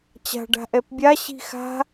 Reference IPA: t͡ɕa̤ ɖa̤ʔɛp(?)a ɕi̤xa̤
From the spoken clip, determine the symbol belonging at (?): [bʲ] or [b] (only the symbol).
bʲ